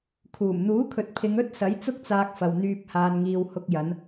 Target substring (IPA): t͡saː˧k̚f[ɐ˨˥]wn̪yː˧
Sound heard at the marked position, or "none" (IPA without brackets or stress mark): ɐ˨